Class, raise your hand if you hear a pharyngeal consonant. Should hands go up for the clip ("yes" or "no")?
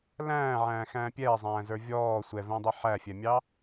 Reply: yes